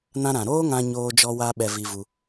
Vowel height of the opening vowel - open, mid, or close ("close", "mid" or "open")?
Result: open